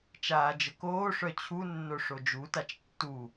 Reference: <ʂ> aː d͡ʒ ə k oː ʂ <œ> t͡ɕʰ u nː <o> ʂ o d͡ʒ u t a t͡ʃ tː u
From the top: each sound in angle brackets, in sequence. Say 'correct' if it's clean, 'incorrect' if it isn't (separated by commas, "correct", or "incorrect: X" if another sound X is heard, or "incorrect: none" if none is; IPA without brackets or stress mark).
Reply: incorrect: t͡ʃ, correct, correct